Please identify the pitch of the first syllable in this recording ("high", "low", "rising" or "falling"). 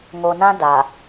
low